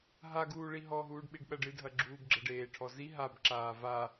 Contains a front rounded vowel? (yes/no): no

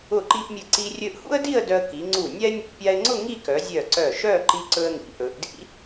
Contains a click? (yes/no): yes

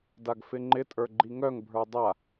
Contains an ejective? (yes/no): yes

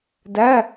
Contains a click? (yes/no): no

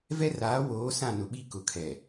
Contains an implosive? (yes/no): yes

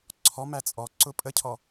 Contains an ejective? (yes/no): yes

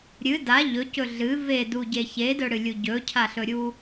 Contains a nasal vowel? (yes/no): no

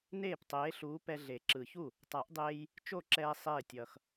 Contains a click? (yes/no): yes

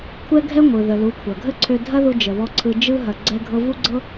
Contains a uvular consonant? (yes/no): no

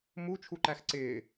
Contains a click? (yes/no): yes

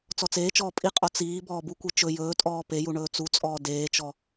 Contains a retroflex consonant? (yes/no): yes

